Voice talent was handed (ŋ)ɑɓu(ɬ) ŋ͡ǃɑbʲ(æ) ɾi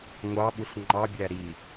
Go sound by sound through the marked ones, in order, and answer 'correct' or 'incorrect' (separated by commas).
incorrect, correct, correct